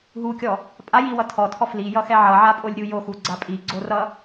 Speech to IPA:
ɦ u kʲ ɔ | pʼ a j i w ʌ tʰ ɔ tʰ ɔ f l i j ʌ x ɛ ʕ ʌ ʕ a pʼ o lʲ ɾʲ u j o x u ɡ͡ǀ a pʼ i ɡ͡ǀ o r ʌ

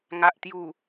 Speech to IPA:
ŋ a˨ ʔ t̪ j u˨˩

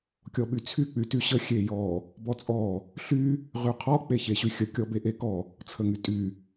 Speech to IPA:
kʲ ɔ ɓ y t͡sʰ y k͡p y t y ɕ ə xʲ e j ɔ | b ɔ t͡sʼ ɔ | ɬ y | ʁ y qʰ ɔ k͡p e ç e ɕ y xʲ ə kʲ ɔ b e ʔ e k ɔ | t͡sʰ ə ŋ y tʼ y

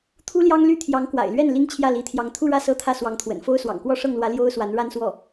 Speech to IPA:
t̪ʰ u˥ l j ɑ˥ ŋ l y˥ t̪ʰ j ɑ˧˥ ŋ k w a̰˨˩ ɪ̯ l ɥ ɛ˥˩ n l i˥ ŋ t͡ɕʰ j ä˥˩ l i˧˥ t̪ʰ j ɑ˧˥ ŋ t̪ʰ u˥˧ ɻ ä˥˧ s ɤ˥˧ t̪ʰ ä˥˩ s w ɑ˧˥ ŋ t̪ʰ w ə̰˨˩ n f o˥ ʊ̯ s w ɑ̰˨˩ ŋ k w ɔ˥˧ ʂ ɤ˥˩ ŋ l w ä˧˥ l j o˥ ʊ̯ s w a˧˥ n ɻ a˥ n s w ɔ˥˩

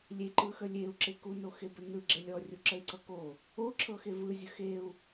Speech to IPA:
lʲ e ǃ ɯ x ə lʲ e u̯ ǁ e k u n o x e b ə n ɯ ɡ͡ǁ e lʲ ɔ rʲ u ǁ ə i̯ ǀ ɤ k o | o ǁʰ ɤ x e v ɯ zʲ ə x e u̯

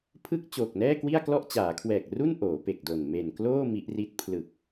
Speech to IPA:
pʰ ɯ˥˩ k̚ t͡ɕ oː˨˩ k̚ n ɛː˥˩ k w i˥˩ a̯ k l ɔ˥˩ ʔ t͡ɕ aː˩˦ kʰ w ɛː˨˩ k̚ r u˥˩ n ʔ oː˩˦ p e˨˩ k̚ d o˨˩ n m e˨˩ n k l oː˥˩ m i˦˥ ʔ r i˦˥ t̚ pʰ l ɯ˨˩ k̚

